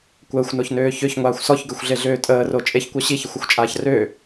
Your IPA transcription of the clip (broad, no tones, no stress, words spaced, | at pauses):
kʷəːxʷnoçnøː çøçŋʷaːxʷ sɔçɡøxʷɮeɮøː tʼəːro t͡ʃʼeçkʷœ ɕiçəxʷəxʷt͡ʃʼaːç rø